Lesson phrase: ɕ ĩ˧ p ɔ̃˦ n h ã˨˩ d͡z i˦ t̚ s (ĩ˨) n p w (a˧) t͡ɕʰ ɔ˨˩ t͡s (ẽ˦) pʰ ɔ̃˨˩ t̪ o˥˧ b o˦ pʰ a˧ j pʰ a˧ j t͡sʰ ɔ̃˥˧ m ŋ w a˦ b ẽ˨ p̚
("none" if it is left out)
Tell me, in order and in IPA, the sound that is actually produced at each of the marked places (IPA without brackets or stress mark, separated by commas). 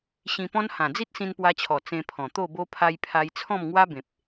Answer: ĩ˧, a˧, ẽ˧